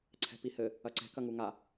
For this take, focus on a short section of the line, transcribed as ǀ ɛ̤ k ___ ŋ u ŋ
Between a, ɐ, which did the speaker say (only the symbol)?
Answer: ɐ